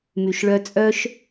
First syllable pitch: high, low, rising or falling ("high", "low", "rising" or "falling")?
low